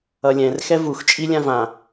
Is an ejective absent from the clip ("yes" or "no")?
no